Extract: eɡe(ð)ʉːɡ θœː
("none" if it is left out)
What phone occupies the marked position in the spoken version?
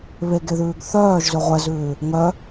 ð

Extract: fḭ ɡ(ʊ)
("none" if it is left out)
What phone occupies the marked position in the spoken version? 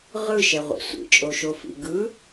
ɯ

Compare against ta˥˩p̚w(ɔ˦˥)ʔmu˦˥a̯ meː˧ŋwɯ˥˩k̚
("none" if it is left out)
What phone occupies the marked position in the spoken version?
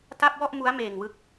ɔ˥˩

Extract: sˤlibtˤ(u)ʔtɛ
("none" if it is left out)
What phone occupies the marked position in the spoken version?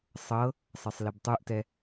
u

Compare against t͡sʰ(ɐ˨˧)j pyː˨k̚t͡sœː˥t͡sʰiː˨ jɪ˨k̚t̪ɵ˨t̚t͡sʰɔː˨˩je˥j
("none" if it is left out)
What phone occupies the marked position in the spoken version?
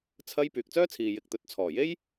ɐ˥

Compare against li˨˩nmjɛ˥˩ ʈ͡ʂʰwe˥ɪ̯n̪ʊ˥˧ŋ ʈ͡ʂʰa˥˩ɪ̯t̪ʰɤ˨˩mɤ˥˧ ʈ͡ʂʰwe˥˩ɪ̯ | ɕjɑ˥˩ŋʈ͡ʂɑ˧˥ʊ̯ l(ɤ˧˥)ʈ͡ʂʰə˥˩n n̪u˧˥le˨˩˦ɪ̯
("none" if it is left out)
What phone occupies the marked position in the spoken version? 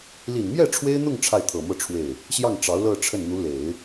ɤ˥˧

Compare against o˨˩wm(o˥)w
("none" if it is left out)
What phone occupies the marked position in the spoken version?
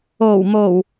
o˨˩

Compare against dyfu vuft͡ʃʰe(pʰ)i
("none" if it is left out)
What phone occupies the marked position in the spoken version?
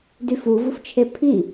pʰ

